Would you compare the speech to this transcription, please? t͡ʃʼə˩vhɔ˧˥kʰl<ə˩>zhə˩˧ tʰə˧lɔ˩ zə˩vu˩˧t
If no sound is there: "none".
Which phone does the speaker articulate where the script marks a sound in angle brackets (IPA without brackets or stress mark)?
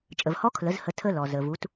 ə˩˧